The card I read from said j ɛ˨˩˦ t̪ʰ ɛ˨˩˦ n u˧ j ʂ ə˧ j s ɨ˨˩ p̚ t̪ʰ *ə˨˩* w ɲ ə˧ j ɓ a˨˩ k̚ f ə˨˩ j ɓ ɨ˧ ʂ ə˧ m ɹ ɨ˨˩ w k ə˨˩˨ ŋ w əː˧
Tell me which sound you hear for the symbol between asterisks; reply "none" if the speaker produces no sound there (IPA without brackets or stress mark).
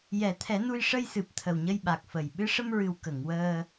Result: ə˨˩